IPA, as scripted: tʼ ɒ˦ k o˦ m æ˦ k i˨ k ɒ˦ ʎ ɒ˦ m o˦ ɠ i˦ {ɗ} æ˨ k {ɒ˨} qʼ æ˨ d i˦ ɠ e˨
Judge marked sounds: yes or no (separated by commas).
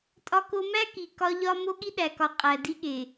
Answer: yes, yes